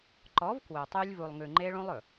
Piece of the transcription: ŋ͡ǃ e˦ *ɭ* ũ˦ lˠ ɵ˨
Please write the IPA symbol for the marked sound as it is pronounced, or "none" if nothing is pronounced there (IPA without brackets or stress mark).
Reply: ɭ